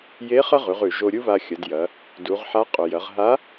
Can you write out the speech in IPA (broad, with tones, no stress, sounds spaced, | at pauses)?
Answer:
j e˧˥ χ ɐ˥ ʁ ʉ˩˧ ʁ ʉ˩ ʒ o˧ ɾʲ u˥ β a˧ xʲ ɐ˩˧ d j ɐ˩˧ | d u˩˧ ʁ ħ a˧˥ qʼ ɵ˩ j ɐ˩˧ ʁ ɦ a˧˥